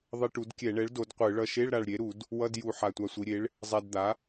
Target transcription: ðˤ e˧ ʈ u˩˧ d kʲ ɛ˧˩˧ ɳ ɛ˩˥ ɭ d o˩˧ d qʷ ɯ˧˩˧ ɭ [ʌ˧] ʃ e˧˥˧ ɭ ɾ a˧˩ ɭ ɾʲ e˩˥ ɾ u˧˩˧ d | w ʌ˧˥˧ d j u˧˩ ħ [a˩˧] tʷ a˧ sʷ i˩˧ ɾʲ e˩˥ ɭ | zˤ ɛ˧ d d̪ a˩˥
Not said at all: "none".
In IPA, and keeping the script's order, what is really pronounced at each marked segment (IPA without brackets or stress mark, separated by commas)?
ʌ˧, a˧˩